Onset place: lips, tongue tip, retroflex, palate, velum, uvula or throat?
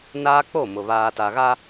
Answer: tongue tip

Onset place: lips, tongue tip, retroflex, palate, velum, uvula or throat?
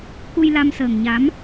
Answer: velum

